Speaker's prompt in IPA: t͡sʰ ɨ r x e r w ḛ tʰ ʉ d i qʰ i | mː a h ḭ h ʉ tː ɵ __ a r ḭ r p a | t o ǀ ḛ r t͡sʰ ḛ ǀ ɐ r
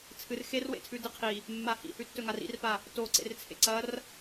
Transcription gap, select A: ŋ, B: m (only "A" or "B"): A